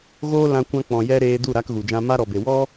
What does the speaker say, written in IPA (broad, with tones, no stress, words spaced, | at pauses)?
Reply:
ɣoː˦ lã˧ kʷã˧ k͡pɔ̃˨jɛ˧ ɾeː˧ du˦˨ɾa˧kɣu˨d͡ʒã˧ ma˦ ɾɔ˨be˨ wɔ˦